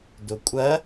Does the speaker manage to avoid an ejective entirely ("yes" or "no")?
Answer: no